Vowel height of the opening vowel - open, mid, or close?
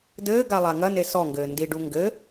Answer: mid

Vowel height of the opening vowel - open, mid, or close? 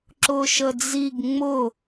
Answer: close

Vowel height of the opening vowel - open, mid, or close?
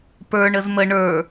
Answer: mid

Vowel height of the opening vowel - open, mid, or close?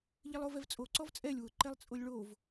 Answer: close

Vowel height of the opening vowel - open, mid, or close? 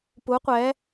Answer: close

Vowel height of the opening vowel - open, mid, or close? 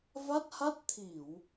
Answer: open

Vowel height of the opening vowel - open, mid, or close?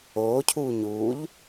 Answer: mid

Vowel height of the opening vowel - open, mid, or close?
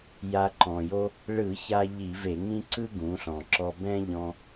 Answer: open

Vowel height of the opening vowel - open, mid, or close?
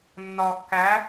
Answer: open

